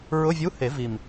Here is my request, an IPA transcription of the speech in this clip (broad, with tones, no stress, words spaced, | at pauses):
ɹʊ˧˥˧vʲu˧˥˧he˨˩˦ vi˨˩m